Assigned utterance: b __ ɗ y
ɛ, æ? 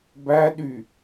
æ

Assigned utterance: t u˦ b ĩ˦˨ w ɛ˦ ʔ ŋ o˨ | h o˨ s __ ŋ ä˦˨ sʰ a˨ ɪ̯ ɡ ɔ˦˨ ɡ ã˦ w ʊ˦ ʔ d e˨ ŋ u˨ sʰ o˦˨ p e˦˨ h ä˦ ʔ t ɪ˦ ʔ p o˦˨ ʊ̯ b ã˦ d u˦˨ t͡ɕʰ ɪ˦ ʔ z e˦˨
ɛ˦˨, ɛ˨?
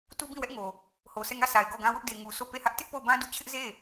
ɛ˦˨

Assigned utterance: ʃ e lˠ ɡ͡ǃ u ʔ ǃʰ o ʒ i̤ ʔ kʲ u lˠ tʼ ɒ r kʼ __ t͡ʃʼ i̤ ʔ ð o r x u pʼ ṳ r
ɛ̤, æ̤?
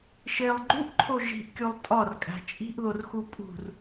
æ̤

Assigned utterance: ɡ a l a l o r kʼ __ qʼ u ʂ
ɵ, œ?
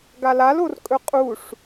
ɵ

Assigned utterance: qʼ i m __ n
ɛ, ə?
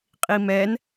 ɛ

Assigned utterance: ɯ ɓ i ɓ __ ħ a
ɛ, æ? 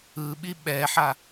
ɛ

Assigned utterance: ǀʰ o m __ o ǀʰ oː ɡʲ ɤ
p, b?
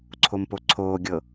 p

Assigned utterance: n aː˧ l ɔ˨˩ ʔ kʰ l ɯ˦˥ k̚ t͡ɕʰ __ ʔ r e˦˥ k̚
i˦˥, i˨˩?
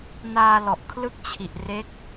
i˨˩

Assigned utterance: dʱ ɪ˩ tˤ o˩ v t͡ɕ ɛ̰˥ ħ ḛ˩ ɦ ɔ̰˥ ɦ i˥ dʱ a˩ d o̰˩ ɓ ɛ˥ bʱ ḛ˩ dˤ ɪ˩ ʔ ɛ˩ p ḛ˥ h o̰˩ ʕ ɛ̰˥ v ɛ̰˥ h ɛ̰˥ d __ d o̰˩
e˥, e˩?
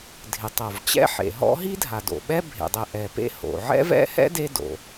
e˥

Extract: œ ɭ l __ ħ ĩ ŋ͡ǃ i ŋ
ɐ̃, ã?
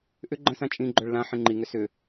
ã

